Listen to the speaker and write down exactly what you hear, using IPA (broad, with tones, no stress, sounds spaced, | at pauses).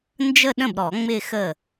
n d͡ʒ ə˥˧ ɗ ə̃˥˩ b ɾ ɔ˨˩˦ ŋ͡m ɪ˥˧ x ə˥˩